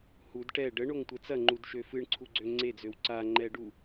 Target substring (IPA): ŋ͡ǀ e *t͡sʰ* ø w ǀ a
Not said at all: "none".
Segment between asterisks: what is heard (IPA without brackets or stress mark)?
d͡z